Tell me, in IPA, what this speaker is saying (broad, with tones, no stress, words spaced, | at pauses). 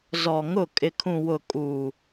zɔ˨ŋʊ˦˨ kʼɪ˨kʰũ˨wʊ˨ kʼuː˨